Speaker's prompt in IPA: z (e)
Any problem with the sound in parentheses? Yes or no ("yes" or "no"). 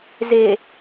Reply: no